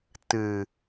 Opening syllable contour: low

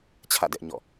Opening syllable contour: falling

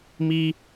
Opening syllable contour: high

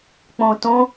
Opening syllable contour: low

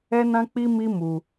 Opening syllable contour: high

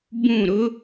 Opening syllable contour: falling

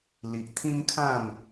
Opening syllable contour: low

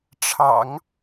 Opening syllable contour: low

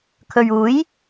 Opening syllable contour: low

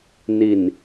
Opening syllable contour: low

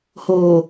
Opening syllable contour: low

